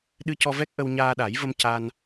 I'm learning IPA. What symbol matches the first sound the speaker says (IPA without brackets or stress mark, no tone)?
ɗ